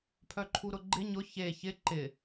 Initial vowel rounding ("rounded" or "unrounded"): rounded